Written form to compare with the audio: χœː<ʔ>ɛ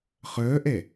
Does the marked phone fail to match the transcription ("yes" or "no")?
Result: no